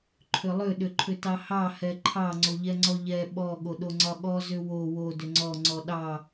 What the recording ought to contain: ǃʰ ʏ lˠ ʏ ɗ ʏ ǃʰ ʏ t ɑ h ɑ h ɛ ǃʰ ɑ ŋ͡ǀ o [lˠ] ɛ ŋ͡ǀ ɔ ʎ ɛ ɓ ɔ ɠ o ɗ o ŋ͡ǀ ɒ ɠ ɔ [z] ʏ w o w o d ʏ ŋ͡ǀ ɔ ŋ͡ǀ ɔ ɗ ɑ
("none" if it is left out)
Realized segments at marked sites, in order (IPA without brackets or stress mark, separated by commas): ʎ, z